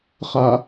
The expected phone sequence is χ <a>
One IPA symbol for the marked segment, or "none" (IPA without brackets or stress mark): a